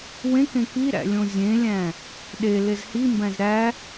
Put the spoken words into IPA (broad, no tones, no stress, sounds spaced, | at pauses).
w ẽ k ẽ k i ɾ æ̰ lʲ õ zʲ ẽ lʲ æ̃ | ɗ e l e z h i m b æ̃ z ɾ æ